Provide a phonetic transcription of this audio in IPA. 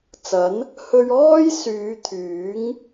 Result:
t͡s ɐ˨˥ n | h ɵ˧ ɥ ɔː˥ j s yː˨˧ t̪ʰ yː˨˥ ŋ

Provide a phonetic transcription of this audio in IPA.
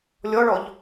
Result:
lʲ ɔ ɭ ɔ ʎ

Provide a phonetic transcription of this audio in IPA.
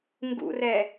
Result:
ŋ ɡ ṵ r ɛ

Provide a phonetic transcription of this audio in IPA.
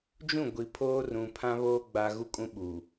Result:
d͡ʒ ũ˦˨ ɡʷ i˨ pʰ oː˦ r ũ˨ pʰ ã˦ β oː˦ ɡ͡b a˦ ɣ u˦ kʼ ũ˦ ɓ u˨

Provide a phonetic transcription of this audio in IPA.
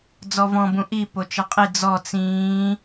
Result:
d͡z ɔ v ɔ̃ b ũ ʔ i p o t͡ʃ ʌ qʼ i d͡z ɔ t͡s ĩː

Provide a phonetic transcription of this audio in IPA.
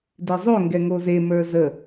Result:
d e zˤ o ŋ ɡ ɛ ŋ o z e m ə˞ z ə

